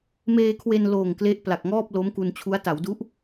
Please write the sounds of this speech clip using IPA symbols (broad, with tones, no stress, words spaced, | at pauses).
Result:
meː˧kʰwe˧n loː˨˩ŋ kle˦˥ʔpla˨˩k̚ ŋɔː˥˩p̚ lo˦˥mku˧nt͡ɕʰu˦˥a̯ ta˩˦wdu˦˥ʔ